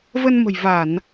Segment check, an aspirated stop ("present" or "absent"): absent